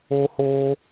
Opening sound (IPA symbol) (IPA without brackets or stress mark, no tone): o